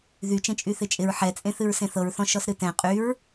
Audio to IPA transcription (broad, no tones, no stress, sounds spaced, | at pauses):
ð y t͡ʃ ẽ t͡ʃʼ y θ ɪ t͡ʃʼ ɪ ɹ ħ ɛ t͡sʼ ẽ θ ɨ ɹ s ẽ θ ɤ ɹ θ ɔ̃ ʃ ɔ s ɾ ɨ t ɛ̃ qʼ y ɹ